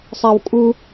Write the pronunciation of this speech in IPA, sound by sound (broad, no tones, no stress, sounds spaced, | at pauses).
sˤ a w kʼ u